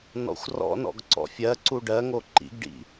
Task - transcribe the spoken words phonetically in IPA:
n ɔ̰ xʷ r ɔ̰ n ɔ̰ ɡ ǀ ɔ̰ fʲ ɜ ǀ u ɖ ɜ ŋ o ǃ ḭ ɡ ɖ ḭ

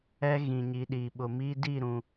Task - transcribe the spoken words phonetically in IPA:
ɛ˦ ɣ ĩ˨ ɲ i˨ ɗ iː˨ ɓ ʊ˨ m iː˦ d i˦˨ ɾ ũ˨

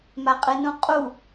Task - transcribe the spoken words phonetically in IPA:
m a qʼ ɨ n ũ qʼ u

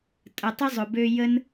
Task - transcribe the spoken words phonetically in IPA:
tʼ ə˨ tˤ ə˥ zˤ ʊ˨ b ø˦ j ə˥ n

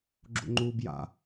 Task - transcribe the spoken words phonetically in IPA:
ɡ͡ǁ ṵ ŋ͡ǃ uː b j a̰

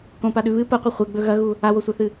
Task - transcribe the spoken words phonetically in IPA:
k õ p a ɗ ʉ β ɨ p ɐ qʷ e χʷ e ɡ͡b ɵ ɣ ɐ ɣ u | a w o sʷ a θ ɨ

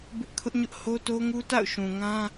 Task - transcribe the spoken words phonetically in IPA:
b ɪ˦ ʔ kʰ ʊ˦ ʔ ɲ ʊ˦ ʔ h o˦ t o˦ ŋ u˦ t a̰˦˨ ʊ̯ ʃ ũ˨ ŋ ã˦

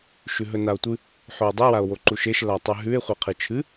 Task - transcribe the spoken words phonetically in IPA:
ʃ ʉ ɦ ɵ n a o̯ tʷ ɨ | ħ o e̯ dˤ i w a o̯ w o ǃ u ʃ e ʃ l a tˤ ʉ ɦ ʉ e̯ χʷ e qʰ ɨ t͡ʃʰ ɨ

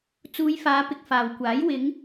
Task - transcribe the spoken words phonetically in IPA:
t͡s uː˨˧ j f aː˨˧ p ɪ˨ k̚ f aː˨ w kʷ aː˨˥ j w ɪ˨˧ ŋ

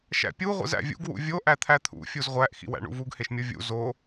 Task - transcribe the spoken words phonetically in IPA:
ʃ æ̰ pʲ u ʁʷ ḭ z æ̰ vʲ ṵ ɡ w ṵ vʲ o ʔ æ t̪ʰ æ t̪ʰ ṵ fʲ u z ʁʷ æ ʔ x ḭ w æ̰ ɳ ṵ v u ɡ h e ʃ mʲ o vʲ ṵ z o

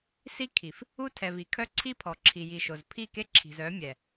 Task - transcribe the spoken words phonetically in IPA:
s i˦ kʰ i˨ f | u˦ tʰ ɛ˨ v i˨ kʰ œ˦ ǀʰ i˦ pʰ ɔ˨ ǁʰ i˨ j i˨ ʃ o˨ z pʰ i˦˨ k e˦ ǁʰ i̤˨ z œ˨˦ mʲ ɛ˨

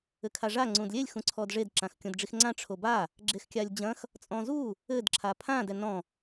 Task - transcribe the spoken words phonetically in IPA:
ɘ kʰ a ʐ a ŋ͡ǀ ũ d lʲ e lʲ x ũ ǀʰ ɔ d ʐ e d ǁ ã x kʲ õ d ɖ͡ʐ i x ŋ͡ǀ ã ʈ͡ʂʰ o b a | ɡ͡ǁ e x kʲ a lʲ d͡ʑ ɐ̃ x | t͡sʼ ɔ̃ z u | ɘ d ǁʰ a pʰ ã d ɛ n ɔ̃

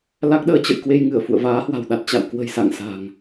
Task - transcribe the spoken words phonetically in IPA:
l a˦˥ k̚ ɗ əː˧ t͡ɕ ə̰˧˨ j k w e˧ j ŋ ɨ˧˩ ə̯ f ṵ˧˨ ə̯ v aː˨˦ h w a̤˨˩ w ɗ a˨˩ t̚ t͡ɕ a̰˧˨ w k w ə̤˨˩ j s a̰˧˨ ŋ s a̤˨˩ ŋ

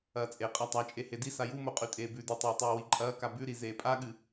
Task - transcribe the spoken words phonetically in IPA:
ɐː t͡sʼ e qʼ a tˤ a t͡ʃʼ e h e d i s a j u m o qʼ ʉ tʼ eː b ʉ d ɨ tˤ eː tˤ ʉː w i ǃʼ ɐː k a b ʉ ɾ i z eː pʼ a ɠ ɨ

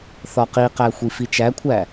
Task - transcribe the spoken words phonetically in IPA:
θ ɒ q i q æ xʷ i f i t͡ʃ æ kʷʰ æ

